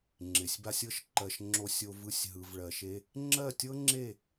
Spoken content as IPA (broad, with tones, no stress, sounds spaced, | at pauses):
ŋ͡ǁ ɪ˨ sʲ b a˦ sʲ ɤ˦ ʃ ǃ ɜ˧ ʃ ŋ͡ǁ o˧ sʲ o˧ v ɯ˦ sʲ ɦ ɯ˧ v ɭ ɜ˧ ʃ e˦ | ŋ͡ǁ ɜ˦˨ tʲ ɤ˦ ŋ͡ǁ e˦˨